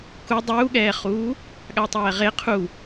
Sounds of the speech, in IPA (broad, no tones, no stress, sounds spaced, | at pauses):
k u dˤ uː ɠ ɛː χ uː | ɠ a tˤ ɛː ʁ e qʰ u